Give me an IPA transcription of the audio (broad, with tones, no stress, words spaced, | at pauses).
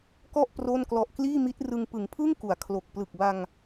kɔ˥˩ʔ pro˥˩n klɔ˨˩ʔkliː˥˩mi˦˥t̚ rɯ˧ŋ pɯ˩˦ŋpʰɯ˥˩ŋ ku˩˦a̯kʰlo˨˩k̚ plɯ˨˩k̚ba˧ŋ